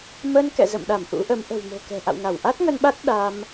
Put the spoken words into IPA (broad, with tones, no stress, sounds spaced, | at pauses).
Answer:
m ə˧ n k ɛ̰˧˨ z ə̰˧˨ m ɗ a˧˩ m ʔ ṵ˧˥ ʔ ə˨˦ m ʔ ə̤˨˩ w m o̤˨˩ k ɛ̤˨˩ ʔ a̰˧˨ w ŋ a˧˩ w ʔ a˦˥ t̚ ŋ ə˧ n ɓ a˦˥ t̚ ɗ a˧ m